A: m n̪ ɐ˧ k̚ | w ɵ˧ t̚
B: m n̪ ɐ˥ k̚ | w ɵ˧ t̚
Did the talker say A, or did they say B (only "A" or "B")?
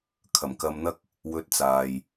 B